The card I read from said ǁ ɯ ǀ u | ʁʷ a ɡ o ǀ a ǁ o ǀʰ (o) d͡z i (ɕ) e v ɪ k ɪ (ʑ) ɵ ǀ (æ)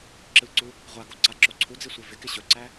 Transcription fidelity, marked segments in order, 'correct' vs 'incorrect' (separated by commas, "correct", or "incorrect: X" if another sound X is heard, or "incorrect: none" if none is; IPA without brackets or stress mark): incorrect: u, incorrect: sʷ, incorrect: ɕ, correct